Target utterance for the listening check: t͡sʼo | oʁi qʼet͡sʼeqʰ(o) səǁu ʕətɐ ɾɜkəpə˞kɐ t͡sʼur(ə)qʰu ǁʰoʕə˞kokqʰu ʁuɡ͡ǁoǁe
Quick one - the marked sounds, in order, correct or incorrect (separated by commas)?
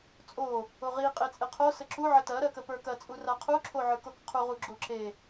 correct, incorrect